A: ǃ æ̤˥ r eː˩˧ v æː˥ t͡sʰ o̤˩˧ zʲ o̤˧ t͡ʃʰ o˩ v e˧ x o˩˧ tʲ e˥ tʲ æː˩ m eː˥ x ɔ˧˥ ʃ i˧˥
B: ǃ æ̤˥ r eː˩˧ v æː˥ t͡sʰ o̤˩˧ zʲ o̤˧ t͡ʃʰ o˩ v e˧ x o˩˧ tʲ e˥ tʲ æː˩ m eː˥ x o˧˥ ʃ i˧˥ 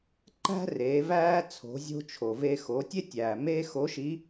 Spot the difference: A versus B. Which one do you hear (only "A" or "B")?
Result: B